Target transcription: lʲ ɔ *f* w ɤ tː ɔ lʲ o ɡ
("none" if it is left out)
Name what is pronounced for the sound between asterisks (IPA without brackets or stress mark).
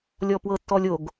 p